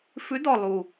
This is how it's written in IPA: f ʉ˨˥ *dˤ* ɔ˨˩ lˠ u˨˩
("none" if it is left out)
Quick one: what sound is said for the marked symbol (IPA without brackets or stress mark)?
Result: d